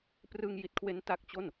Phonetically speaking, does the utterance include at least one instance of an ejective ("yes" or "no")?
no